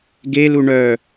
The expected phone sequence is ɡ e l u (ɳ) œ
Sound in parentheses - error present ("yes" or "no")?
no